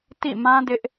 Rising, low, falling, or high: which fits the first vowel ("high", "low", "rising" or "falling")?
falling